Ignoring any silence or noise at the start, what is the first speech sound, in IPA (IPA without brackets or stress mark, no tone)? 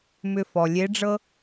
m